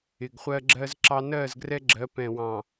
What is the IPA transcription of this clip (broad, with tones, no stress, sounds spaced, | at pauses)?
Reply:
ɪ˨ ɡ χʷ ɜ˦ ɡ͡ǁ ɜ˦ z ǁ ɑ˦ n ɜ˦˨ z ɡ r ɛ˦ ɡ͡ǁ ɜ˨˦ p ɛ̃˨ w ɑ̃˨